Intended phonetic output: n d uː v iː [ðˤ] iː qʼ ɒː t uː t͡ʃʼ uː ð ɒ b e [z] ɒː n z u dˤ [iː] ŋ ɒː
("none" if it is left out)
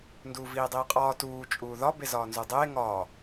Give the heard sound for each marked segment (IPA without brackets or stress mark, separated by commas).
dˤ, z, eː